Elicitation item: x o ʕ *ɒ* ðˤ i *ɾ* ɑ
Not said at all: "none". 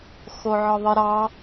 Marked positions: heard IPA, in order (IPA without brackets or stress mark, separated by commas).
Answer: ɒ, ɾ